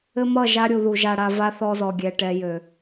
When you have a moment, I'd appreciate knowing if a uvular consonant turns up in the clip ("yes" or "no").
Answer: no